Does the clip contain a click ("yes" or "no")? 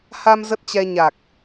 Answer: no